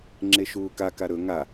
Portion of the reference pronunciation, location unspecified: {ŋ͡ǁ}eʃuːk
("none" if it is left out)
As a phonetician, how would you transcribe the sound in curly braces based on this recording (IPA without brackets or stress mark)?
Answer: ŋ͡ǁ